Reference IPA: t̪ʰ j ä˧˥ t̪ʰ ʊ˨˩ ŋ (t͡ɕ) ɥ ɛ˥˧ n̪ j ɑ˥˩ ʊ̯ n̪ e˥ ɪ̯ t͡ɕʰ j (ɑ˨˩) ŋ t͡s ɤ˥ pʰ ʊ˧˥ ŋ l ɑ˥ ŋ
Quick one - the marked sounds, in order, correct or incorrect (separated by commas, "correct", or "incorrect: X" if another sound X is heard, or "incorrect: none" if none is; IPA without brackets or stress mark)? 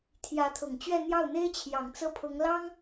correct, correct